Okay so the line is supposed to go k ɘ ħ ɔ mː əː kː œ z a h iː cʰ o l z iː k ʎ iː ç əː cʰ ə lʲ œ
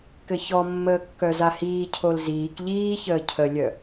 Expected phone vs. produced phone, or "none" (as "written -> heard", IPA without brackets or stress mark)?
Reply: ħ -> ç